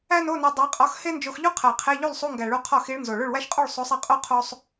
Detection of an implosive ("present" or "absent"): absent